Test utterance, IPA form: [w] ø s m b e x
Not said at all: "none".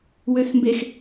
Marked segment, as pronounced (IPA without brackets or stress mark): w